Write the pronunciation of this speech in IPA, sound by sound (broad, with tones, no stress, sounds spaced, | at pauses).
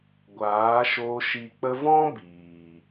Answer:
ɡʷ aː˨˦ ʃ oː˧ ʃ i˨ k͡p ə˧ v ɔ̃˦ b iː˨